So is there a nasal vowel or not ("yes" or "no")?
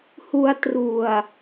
no